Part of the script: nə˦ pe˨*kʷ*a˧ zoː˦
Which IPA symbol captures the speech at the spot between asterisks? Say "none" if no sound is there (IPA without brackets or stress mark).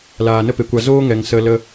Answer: kʷ